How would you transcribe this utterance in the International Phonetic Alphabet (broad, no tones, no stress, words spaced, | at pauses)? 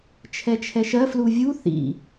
t͡ʃʰɛt͡ʃʰɛʃɜ fluvʲu θḭ